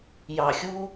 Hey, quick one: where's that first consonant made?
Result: palate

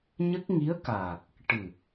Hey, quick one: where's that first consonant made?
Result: palate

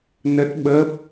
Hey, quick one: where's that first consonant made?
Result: tongue tip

